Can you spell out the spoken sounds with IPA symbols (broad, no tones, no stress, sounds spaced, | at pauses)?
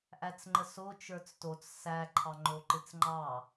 ʔ æ t͡s ŋ͡ǃ ə s o t͡ʃ ə˞ t͡s t o t͡s s æ ǃʰ ɑ ŋ͡ǃ o ǃ ɨ t͡s ŋ͡ǃ ɑ